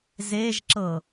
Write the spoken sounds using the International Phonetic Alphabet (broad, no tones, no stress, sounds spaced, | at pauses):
z e ʒ ǁ ɤ